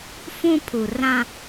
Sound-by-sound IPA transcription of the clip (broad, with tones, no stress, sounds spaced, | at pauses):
f ũ˦ pʰ u˨ r ã˦